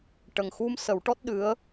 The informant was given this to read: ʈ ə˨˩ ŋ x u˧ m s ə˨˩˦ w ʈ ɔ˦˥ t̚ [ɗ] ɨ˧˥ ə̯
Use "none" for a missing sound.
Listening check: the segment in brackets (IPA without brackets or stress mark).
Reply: ɗ